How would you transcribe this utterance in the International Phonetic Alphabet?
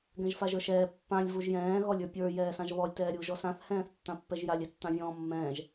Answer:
ɡ ɛ̃ ʒ f a ʒ ə˞ ʃ ɛː pː ã lʲ v u ʒ j ɛ̃ː ɣ ɔ lʲ ə˞ pʲ ə˞ j ɛː s ã ʒ β ɔ lʲ t ɛː ɾʲ uː ʒ ɔ s ã θ h ɛ̃ː θ tː ã pː ɛ ʒ j a lʲ ɛ tː ã vʲ ɔ̃ː mː ɛ̃ː ʒ

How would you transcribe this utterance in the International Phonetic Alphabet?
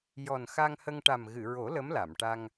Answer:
j ɔ˨˩ n x a˧ ŋ h ə˧ ŋ ʈ a˨˩ m ɣ ɨ˨˩˨ ɹ o˨˩˦ l ə˧˥ m l a˨˩˨ m ʈ a˧ ŋ

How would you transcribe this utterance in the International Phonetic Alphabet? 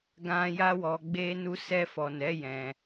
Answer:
ɡ ã˧ j a˧ w ɔ˨ ɡ͡b e˧ n u˧ s ɛ˧ f ɔ˨ n ɛ˨˦ j ɛ̃˧

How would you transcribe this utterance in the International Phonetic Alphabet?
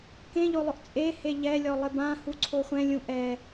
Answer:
k ẽ ʎ o lˠ ʊ ʔ t͡sʼ e h e ʎ ɛ lʲ ɔ lˠ ɪ b ã h u ǀʰ o χʷ ɛ̃ lʲ ũ ʔ ɛ

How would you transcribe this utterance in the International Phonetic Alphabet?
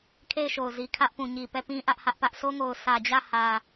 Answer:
kʰ e˦˨ ɪ̯ ʃ o˨ ʊ̯ z i˨ kʰ ä˦ ʔ p ũ˨ ɲ i˨ p ɛ˦˨ p ĩ˦ ʔ ä˦ ʔ h ä˦ ʔ p ä˦ ʔ sʰ o˦ ŋ o˨ ʊ̯ sʰ ä˨ d͡ʑ ä˦˨ h ä˨

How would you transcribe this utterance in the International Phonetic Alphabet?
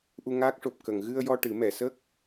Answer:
ʔ u˧ ŋ aː˦˥ k̚ ʂ o˨˩ p̚ k ə˨˩˨ ŋ ɣ ɨ˧ ə̯ j ɔ˧ ʈ ɨ˨˩˦ m ɛ˨˩˨ s ə˦˥ k̚

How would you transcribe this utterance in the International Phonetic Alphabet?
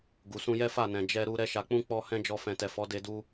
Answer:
ɡ u˨ s ũ˧ j ɛ˦ f a˦˨ n ɛ̃˨ d͡ʒ ɛ˧ ɾ u˧ ɾ ɛ˦ ʃ a˧ k͡p ũ˦ k͡p ɔ˧ h ɛ̃˦ d͡ʒ ɔ˧ f ɛ̃˨ t ɛ˨ f ɔ˨˦ d e˧ d u˧

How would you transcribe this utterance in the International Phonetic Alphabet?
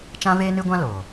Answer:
t͡ʃ ã˦ v eː˦ n ɨ˦ ɡʷ ã˦ l oː˨

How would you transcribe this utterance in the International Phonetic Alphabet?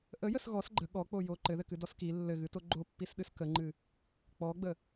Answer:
ʔ ə j ə s ɣ ɔ s ɡ͡ǃ ə ɠ ɔ k͡p o j o ǃ ɘ ð ɘ k ɨ d ɔ s k i lː ɘ ɣ ɨ t o ɡ͡ǃ o pː i s ɗ ɨ s k ə ŋ͡ǃ ɨ | k͡p ɔ ɡ͡b ə

